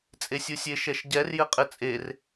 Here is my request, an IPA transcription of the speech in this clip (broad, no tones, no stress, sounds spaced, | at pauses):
t͡sʼ e sʲ u sʲ e ʃ ɛ ʃ ɟ ɛ r j ɘ qʼ ɘ t͡sʼ e r